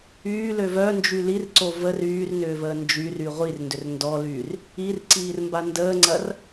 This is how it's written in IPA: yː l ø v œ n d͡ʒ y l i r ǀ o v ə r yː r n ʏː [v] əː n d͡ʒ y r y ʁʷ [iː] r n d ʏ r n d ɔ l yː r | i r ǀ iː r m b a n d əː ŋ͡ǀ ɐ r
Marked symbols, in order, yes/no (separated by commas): yes, no